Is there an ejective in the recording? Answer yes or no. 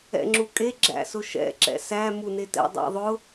yes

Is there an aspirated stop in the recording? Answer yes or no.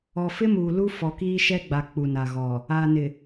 no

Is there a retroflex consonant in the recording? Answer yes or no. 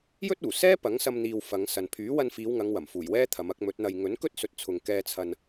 no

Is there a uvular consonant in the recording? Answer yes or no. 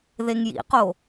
yes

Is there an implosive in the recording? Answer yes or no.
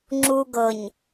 no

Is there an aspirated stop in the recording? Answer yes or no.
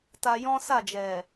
no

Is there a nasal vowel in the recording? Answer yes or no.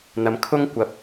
no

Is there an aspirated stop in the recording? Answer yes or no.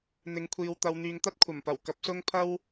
yes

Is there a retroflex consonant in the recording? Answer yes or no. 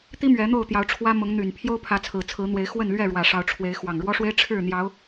yes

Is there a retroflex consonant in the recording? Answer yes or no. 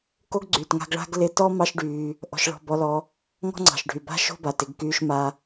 yes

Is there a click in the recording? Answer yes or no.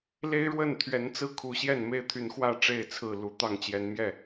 no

